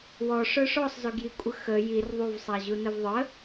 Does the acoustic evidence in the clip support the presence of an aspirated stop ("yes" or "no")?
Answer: no